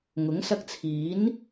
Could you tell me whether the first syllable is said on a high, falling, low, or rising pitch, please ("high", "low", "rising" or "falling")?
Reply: rising